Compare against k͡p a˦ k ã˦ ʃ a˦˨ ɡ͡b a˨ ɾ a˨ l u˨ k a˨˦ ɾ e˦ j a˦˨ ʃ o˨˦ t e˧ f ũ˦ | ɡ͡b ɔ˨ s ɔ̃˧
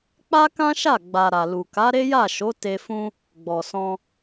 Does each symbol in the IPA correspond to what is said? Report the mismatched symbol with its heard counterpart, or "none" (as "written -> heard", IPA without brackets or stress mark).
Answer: none